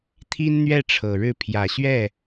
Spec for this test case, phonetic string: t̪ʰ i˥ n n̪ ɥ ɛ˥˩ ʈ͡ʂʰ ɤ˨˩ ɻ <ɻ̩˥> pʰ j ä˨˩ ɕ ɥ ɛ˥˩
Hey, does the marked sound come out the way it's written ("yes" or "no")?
no